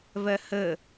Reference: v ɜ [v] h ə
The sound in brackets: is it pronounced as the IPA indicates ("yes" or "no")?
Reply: no